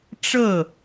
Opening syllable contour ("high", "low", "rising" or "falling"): falling